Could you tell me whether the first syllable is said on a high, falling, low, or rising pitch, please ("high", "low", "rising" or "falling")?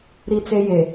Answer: high